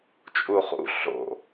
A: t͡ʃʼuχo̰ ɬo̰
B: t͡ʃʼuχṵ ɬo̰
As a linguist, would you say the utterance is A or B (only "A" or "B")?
B